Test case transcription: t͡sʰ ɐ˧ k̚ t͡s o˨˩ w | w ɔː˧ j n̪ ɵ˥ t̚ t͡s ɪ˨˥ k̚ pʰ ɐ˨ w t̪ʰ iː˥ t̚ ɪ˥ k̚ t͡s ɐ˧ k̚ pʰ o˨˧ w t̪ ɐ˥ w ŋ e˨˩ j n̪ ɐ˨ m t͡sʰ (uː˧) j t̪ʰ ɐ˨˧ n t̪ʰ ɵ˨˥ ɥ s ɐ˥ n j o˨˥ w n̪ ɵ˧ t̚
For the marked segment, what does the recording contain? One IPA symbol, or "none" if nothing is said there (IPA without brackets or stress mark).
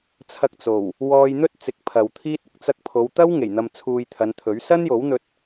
uː˧